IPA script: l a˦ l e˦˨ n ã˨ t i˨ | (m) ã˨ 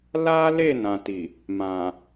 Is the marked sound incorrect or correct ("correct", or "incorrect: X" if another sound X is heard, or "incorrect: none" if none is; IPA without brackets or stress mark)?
correct